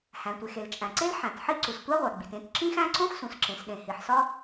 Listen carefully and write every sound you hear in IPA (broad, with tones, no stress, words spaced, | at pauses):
hæ̃˩tʷe˩x e˩lt͡ʃʼæ̃˩ǀe˥l ħæ̃˩t ħi˥ ǀu˩stʷæ˥ʁʷæ˩ɡ͡bi˩t ẽ˥t ǁĩ˥xæ̃˥ ǀõ˥xsũ˩sǁẽ˩sɗẽ˩ hi˩ħsɒ˥